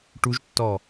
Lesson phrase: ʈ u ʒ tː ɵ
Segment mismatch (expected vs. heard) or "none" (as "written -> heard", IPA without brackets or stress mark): ɵ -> ɔ